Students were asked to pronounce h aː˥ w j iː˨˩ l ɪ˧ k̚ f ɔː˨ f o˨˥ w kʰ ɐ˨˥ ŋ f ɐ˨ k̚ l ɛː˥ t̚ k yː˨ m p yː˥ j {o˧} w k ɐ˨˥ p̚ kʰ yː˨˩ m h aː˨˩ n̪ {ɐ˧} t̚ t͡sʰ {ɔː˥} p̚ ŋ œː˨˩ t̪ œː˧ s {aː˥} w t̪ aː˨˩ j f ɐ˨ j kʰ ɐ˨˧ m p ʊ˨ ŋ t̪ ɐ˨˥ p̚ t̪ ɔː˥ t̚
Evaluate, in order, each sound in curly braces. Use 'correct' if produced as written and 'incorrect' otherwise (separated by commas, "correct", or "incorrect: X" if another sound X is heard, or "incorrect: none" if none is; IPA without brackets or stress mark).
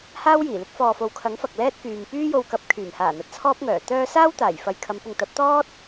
correct, incorrect: ɐ˨, correct, correct